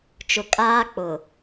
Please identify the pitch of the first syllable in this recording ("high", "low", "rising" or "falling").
low